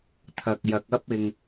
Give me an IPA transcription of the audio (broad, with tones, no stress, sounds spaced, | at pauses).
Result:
t̪ʰ ɐ˨ k̚ j ɐ˨ k̚ ɐ˥ p̚ ɪ˨ ŋ